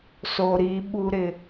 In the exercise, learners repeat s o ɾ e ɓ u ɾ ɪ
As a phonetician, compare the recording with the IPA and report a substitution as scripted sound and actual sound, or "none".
e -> i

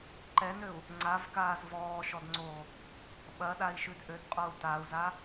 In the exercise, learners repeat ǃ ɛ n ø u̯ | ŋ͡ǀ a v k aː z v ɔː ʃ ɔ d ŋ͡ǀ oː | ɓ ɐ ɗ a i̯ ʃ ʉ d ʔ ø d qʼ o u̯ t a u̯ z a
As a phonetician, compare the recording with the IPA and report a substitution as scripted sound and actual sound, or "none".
none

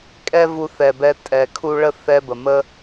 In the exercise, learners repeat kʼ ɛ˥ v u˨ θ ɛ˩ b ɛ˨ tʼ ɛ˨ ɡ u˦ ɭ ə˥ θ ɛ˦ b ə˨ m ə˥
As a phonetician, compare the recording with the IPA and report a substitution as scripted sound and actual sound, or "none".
ɡ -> kʰ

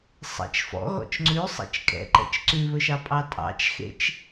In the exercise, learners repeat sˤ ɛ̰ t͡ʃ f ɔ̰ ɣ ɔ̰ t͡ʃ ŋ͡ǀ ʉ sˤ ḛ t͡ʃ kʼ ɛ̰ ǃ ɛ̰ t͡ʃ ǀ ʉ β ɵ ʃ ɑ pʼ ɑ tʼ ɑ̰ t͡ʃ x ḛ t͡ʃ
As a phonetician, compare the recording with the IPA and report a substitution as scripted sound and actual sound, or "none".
none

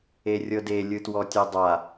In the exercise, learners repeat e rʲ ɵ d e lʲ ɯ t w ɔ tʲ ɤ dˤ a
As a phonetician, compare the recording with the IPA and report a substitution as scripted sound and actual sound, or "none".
ɵ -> ɤ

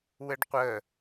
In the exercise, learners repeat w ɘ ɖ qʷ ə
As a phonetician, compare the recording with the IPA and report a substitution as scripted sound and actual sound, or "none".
none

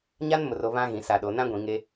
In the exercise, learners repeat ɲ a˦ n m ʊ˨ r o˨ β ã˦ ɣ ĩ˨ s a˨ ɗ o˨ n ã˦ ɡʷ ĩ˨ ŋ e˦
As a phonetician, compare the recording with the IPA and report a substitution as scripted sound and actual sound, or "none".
none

